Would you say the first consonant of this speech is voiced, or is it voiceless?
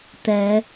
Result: voiceless